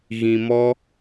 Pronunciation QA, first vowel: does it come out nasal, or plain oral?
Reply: nasal